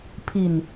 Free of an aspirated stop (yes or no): no